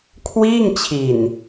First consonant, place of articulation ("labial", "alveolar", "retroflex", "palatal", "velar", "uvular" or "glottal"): velar